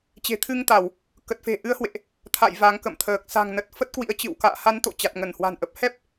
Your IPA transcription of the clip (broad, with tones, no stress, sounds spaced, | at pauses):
t͡ɕ e̤˨˩ t̪ʰ ɨ˧ ŋ t̪ a˧˩˨ w | k ə˨˩ t̚ f e̤˨˩ ʔ ɨ˨˦ ə̯ h w ḛ˧˨ ʔ | t̪ʰ a̰˧˨ j v a˨˦ ŋ k ə̰˧˨ m t̪ʰ əː˨˩ k̚ s a̤˨˩ ŋ n ə˨˩ t̚ f ə˦˥ t̚ k w ḭ˧˥ ə̯ t͡ɕ ɨ̰˧˨ w k a̰ː˧˨ h a˨˦ n t̪ o̰˧˨ t͡ɕ a˨˩ t̚ ŋ ə˧˩ n h w a̤˨˩ n ʔ ə˨˩ p̚ h ɛ˦˥ p̚